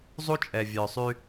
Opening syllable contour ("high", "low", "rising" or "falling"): high